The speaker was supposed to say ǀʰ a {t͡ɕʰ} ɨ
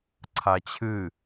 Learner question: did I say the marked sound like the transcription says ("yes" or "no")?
yes